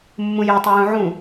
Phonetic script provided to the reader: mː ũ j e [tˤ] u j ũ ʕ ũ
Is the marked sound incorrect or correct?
correct